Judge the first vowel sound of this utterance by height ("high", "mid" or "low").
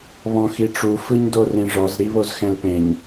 mid